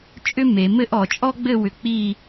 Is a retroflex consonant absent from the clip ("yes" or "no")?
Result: yes